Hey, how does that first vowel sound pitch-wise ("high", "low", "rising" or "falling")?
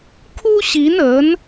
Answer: high